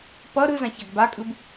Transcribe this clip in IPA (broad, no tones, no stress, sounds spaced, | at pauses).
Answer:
p ʌ ɾ ɯ z ã ç a ɡ b a kʼ ɯ b